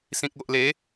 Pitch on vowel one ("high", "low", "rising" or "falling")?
low